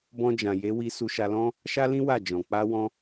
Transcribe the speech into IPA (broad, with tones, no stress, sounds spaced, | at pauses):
b ɔ̃˧ d͡ʒ ã˨ j e˨˦ w i˧ s u˧ ʃ a˧ l ɔ̃˦ | ʃ a˦ l ĩ˦ w a˦˨ d͡ʒ ɔ̃˨ k͡p a˧ w ɔ̃˧